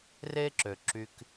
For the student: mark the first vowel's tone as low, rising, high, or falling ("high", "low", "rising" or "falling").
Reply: high